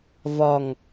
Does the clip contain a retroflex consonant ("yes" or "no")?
no